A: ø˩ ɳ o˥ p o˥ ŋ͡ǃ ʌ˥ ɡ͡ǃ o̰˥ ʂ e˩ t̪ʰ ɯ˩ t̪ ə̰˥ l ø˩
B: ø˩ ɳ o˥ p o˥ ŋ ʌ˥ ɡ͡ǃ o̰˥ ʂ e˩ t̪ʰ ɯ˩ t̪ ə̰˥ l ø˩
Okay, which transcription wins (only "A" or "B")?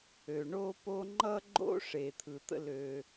A